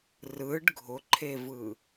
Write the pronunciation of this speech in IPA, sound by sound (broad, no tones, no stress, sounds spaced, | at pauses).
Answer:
r ɯ ɖ ɡʱ ʊ ǃʰ e v ɯ